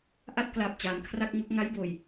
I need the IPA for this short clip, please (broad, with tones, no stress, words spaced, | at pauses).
ʔa˥˩t̚kla˨˩p̚ t͡ɕaː˩˦nkʰra˥˩k̚ŋo˥˩k̚ ŋa˦˥jboː˨˩j